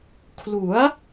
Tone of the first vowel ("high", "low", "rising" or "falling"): rising